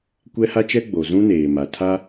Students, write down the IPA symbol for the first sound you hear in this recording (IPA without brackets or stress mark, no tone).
kʷ